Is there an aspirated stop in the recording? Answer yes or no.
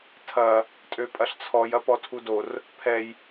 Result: yes